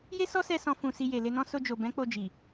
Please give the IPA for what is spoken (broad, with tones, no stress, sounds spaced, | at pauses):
j e˦ s ɔ˦ s ɛ˧ s ɔ̃˦ f ũ˧ s i˧ j e˨ l e˧ n ɔ̃˦ s o˧ d͡ʒ o˨ b ɛ̃˨˦ k͡p o˧ d͡ʒ i˨